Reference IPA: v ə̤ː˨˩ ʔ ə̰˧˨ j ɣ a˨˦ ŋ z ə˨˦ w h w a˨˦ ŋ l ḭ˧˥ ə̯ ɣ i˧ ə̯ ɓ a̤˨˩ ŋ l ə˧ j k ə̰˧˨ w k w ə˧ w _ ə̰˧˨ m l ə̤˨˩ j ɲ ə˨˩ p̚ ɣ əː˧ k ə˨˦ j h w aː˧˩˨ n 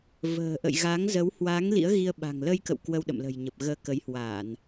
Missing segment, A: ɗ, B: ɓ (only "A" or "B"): A